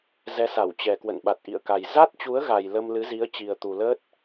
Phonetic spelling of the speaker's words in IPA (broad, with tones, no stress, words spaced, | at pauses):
zɛ˨˦sa˧˩wt͡ɕɛ˨˩kwə̰˧˨n ɓa˨˩t̚ʔḭ˧˨ə̯ka˨˩j za˦˥t̚t͡ɕu˨˦ə̯ɣa˨˩j lə˧mlɨ˨˦zi˨˦ə̯t͡ɕi˨˩ə̯ t̪u˨˩ləː˦˥t̚